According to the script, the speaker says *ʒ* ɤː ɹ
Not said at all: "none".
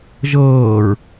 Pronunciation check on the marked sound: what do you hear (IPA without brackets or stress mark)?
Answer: ʒ